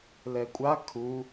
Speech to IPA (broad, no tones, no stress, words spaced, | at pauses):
lɛkʷʼa kʰu